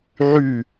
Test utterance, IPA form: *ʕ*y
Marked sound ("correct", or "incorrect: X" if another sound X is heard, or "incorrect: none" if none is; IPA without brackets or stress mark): correct